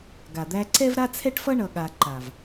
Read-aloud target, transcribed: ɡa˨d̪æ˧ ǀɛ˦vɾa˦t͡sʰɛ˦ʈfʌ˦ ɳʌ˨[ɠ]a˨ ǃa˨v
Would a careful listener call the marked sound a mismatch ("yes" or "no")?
no